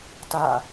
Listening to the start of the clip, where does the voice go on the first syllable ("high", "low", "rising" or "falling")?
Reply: falling